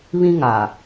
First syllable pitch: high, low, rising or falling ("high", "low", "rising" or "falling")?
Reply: high